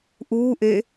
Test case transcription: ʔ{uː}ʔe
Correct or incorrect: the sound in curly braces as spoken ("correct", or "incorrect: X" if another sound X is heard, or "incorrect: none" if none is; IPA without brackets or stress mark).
correct